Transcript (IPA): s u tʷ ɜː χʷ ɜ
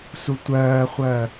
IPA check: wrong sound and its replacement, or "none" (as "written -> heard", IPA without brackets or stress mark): none